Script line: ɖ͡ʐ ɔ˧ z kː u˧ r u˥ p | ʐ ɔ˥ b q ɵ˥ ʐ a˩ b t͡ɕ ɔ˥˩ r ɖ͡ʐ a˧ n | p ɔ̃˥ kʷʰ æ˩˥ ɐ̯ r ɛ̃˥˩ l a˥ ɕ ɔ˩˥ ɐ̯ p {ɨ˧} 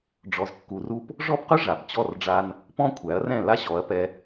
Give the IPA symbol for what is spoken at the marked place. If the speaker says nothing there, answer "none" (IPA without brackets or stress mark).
ɛ˧